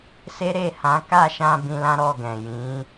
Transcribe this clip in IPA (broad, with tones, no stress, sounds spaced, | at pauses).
s e˦ ɾ e˦˨ h ã˨˦ k a˦˨ ʃ ã˧ b ĩ˧ l ã˦ ɾ ɔ˦˨ ɡ ɛ̃˨ j ĩ˨˦